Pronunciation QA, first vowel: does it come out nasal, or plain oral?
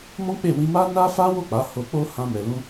nasal